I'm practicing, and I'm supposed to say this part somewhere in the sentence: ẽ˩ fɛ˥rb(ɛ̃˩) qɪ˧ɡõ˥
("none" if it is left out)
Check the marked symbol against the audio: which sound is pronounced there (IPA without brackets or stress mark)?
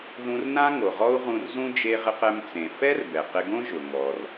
ɛ˩